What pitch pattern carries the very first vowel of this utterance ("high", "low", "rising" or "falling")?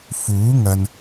rising